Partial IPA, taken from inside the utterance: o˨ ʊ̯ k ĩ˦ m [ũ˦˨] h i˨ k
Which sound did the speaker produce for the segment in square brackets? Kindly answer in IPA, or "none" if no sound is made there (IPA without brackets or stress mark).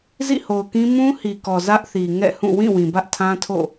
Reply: ũ˦